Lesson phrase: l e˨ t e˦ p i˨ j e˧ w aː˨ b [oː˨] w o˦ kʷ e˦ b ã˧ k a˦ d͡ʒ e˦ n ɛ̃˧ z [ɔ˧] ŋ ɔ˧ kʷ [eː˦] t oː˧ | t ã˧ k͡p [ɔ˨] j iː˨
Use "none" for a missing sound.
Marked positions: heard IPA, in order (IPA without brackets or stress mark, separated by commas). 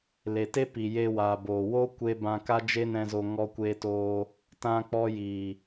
oː˨, o˧, eː˧, ɔ˧